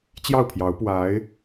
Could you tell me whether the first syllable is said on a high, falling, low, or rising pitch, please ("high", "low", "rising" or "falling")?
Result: falling